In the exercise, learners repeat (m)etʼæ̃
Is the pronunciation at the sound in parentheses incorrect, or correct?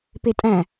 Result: incorrect